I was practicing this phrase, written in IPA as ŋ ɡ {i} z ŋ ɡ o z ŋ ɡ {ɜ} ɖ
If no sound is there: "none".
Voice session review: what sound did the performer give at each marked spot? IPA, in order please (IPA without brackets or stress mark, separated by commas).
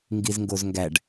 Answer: i, æ